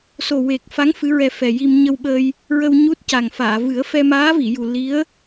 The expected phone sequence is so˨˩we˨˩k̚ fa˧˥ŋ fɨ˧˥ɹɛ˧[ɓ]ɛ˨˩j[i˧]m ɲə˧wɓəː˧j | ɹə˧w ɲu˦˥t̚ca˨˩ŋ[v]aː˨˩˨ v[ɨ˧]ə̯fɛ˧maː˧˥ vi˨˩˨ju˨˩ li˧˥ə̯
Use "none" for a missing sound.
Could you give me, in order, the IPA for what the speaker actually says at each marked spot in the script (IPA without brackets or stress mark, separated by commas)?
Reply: f, i˧, f, ɨ˨˩˦